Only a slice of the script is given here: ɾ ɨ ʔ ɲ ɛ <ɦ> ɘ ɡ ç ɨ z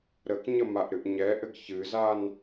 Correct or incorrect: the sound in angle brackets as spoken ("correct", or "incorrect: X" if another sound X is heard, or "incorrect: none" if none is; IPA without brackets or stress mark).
incorrect: ʔ